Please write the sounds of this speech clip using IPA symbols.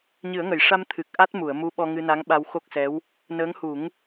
ɲɨ˨˩˦ə̯ŋə˨˩˨jʂa˧m t̪ʰɨ˨˩k̚ ʔa˦˥t̚mu˨˩˨ə̯mu˧˥ ɓɔ˧ŋɨ˧na˧˥ŋɓa˧w xo˦˥k̚sɛ˧˥w | nəː˧˥ŋ hu˨˩˦ŋ

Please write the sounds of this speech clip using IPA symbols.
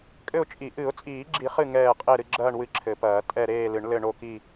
kʼɘ˦˨ʊ̯t͡ʃʼi˨˩˦ ʔɨ˨˩˦ʊ̯t͡sʼiː˨˩˦ɡ͡ǁi˨˩˦ χɨ˦˨ ŋɛː˦˨ qʼe˦˨ɾɨ˦˨ɡ͡ǁɐː˦˨ɳ wɨ˦˨ǁʰɘ˨˩˦pɐː˨˩˦ tʼɛ˦˨ɾeː˦˨lɨ˨˩˦ɳ lɘ˦˨ɳo˦˨ki˦˨

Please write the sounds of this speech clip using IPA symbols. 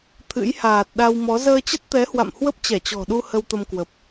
t̪ʰɨ̰˧˥jhaː˨˩t̚ ɗa˧wmɔ˨˦ zəː˧t͡ɕə˦˥t̚t̪ɛ˨˦hwa̰˧˨m hwə˦˥p̚t͡ɕɛ˧˩t͡ɕɔ̤˨˩ɗu˧ hə˧wt̪ə˧mkwə˨˩p̚

